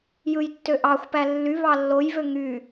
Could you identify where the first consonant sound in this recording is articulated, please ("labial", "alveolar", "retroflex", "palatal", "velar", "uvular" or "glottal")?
palatal